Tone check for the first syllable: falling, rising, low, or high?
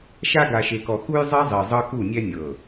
high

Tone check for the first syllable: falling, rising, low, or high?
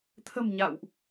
low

